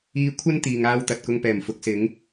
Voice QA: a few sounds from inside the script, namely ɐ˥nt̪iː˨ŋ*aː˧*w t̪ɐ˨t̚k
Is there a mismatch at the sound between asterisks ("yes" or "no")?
no